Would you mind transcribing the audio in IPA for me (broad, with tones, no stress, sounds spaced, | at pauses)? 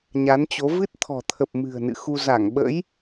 ɲ a˨˦ n t͡ɕ o˨˦ v ɨ˦˥ t̚ t̪ʰ ɔ̤˨˩ t̪ʰ ə˨˩ p̚ m ɨ̤˨˩ ə̯ n ɨ̰˧˨ x u˧ z a˧˩ ŋ ɓ ə̰˧˥ j